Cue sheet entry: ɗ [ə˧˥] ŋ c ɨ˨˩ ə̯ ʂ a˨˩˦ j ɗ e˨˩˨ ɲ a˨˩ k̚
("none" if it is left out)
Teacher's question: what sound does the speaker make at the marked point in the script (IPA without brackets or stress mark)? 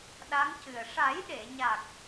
a˧˥